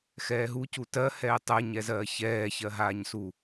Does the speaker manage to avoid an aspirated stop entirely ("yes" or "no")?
yes